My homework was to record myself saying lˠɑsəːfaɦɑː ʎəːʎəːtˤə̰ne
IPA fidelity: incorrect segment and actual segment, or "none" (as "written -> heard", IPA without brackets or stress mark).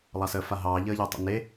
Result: none